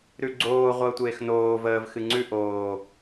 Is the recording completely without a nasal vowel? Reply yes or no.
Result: yes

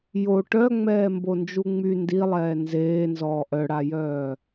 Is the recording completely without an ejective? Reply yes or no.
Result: yes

